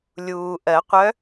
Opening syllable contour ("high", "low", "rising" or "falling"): low